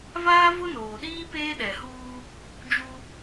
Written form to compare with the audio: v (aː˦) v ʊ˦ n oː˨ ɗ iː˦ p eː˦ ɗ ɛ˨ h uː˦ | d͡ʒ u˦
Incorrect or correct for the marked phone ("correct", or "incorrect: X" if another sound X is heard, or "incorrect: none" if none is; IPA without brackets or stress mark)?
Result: correct